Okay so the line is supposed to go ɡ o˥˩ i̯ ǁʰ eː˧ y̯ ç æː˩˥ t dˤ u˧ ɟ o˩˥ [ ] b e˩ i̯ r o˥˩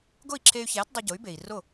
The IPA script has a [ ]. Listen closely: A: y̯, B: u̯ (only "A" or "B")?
A